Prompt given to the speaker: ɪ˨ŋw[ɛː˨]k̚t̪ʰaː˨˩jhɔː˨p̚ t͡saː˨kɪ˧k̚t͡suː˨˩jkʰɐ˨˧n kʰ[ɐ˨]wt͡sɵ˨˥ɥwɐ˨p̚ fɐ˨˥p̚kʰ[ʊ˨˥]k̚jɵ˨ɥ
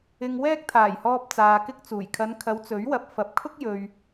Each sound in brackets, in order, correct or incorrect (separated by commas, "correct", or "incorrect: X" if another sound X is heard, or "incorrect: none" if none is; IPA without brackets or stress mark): incorrect: ɛː˧, incorrect: ɐ˨˧, incorrect: ʊ˥